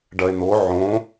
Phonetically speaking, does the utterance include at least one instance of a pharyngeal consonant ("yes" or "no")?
yes